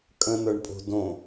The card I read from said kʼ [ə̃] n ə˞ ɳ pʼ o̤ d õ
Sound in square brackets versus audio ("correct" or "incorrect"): correct